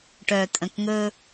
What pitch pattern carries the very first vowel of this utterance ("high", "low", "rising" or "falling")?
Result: low